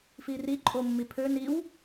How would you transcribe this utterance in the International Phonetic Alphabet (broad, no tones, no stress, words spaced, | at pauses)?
firi ǃʼomːipʰø niw